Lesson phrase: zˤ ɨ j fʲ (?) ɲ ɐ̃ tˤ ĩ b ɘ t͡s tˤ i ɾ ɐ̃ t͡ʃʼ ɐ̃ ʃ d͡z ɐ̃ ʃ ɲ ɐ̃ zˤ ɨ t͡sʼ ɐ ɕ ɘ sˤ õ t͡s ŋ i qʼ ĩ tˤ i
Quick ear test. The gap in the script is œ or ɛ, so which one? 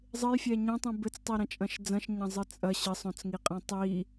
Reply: ɛ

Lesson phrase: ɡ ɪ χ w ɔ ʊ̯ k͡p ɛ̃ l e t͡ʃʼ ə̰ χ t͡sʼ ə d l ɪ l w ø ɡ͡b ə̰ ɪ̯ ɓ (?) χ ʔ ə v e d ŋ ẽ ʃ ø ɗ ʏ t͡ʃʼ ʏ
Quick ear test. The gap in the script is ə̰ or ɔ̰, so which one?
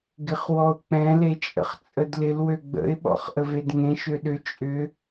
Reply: ɔ̰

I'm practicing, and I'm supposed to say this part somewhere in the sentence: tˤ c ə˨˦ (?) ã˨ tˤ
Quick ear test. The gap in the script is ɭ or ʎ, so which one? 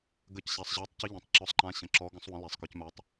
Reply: ʎ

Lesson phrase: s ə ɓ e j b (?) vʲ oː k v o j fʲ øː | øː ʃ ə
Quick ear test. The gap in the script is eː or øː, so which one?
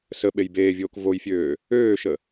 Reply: eː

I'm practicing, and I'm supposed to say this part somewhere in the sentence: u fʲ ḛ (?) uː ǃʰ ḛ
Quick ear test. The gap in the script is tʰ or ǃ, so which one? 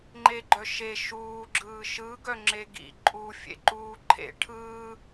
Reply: ǃ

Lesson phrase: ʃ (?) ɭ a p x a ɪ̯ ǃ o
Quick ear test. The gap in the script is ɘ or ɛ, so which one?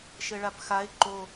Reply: ɘ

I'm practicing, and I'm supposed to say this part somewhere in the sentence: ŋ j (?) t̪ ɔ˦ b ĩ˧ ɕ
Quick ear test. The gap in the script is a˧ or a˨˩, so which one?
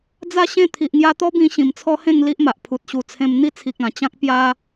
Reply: a˧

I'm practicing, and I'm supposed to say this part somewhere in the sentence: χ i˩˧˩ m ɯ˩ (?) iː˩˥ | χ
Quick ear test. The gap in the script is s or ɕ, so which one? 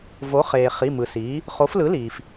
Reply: s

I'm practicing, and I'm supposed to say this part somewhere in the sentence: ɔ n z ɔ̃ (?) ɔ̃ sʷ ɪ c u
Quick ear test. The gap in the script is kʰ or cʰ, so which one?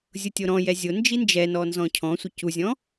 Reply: cʰ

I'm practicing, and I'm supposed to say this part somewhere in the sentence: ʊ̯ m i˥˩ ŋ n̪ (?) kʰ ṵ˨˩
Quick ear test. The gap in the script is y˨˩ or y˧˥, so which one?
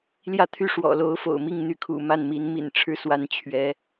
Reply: y˧˥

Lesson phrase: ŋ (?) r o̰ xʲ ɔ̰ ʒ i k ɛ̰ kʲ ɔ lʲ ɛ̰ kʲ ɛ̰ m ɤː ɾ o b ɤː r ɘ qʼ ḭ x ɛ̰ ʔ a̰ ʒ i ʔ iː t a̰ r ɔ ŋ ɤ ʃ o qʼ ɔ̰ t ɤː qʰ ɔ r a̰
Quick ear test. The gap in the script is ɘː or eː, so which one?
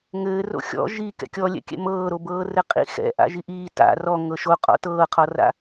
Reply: ɘː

